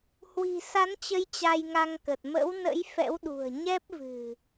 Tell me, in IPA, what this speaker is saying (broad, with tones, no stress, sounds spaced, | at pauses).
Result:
h w i̤˨˩ s a˨˦ n t͡ɕ ə˨˦ j t͡ɕ a˧ j ŋ a˧ ŋ k ə˨˩ t̚ m ə̰˧˥ w n ə̰˧˥ j f ɛ̰˧˥ w ɗ ṳ˨˩ ə̯ ɲ ɛ˦˥ p̚ v ɨ̤˨˩